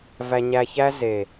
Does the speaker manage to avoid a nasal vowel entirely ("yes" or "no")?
yes